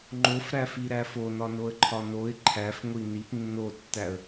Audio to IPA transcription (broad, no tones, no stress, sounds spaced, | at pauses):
ŋ͡ǃ o f ɾ æ f i ɾ æ f o n ɒ n o ə̯ ǃʰ ɒ n o ɪ̯ ǃʰ æ f ŋʷ i n i p nː o tː æ ə̯